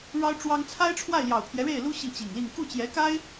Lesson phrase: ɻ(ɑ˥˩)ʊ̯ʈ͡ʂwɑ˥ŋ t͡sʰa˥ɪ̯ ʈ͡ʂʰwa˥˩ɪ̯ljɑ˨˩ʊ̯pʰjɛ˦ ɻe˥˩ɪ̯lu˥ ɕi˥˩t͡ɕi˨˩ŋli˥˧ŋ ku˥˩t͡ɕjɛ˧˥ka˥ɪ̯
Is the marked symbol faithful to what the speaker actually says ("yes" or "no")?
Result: no